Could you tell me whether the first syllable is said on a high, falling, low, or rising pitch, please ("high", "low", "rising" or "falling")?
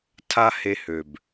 high